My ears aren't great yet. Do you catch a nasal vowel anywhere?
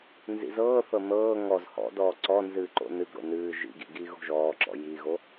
no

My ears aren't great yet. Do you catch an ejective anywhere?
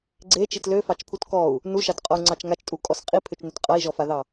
yes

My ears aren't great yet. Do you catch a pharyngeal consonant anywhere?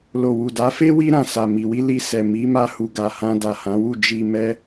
no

